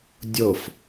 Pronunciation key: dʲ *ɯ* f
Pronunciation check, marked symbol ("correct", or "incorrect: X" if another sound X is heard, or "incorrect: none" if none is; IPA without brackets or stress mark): incorrect: ɤ